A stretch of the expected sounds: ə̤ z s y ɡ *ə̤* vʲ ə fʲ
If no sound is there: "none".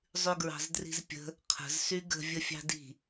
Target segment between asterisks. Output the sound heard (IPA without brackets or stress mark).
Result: ə̤